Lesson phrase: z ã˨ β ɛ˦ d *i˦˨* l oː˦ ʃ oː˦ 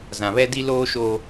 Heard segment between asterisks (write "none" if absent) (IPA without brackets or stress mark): i˦